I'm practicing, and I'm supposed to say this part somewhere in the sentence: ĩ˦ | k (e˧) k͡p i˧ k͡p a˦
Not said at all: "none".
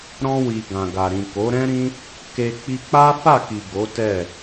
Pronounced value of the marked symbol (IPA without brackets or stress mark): e˧